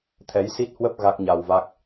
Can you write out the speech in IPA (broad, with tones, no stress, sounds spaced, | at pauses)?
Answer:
t̪ʰ ɛ˨˦ j s i˦˥ t̚ h w ə˦˥ p̚ ɣ a˦˥ k̚ ɲ a˧ w v a˦˥ k̚